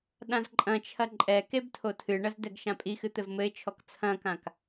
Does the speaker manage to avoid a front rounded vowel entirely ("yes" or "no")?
yes